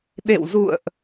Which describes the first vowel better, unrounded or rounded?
unrounded